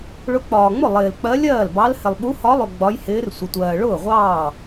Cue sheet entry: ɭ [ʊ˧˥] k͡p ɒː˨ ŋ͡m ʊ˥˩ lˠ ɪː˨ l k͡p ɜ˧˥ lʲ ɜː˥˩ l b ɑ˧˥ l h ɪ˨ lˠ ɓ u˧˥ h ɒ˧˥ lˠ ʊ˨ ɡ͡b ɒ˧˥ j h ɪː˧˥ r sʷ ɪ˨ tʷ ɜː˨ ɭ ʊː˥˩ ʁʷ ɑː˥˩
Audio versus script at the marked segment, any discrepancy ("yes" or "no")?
no